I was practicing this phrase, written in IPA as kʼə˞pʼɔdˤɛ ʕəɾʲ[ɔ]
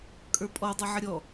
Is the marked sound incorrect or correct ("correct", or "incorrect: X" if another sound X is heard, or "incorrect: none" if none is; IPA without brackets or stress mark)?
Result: correct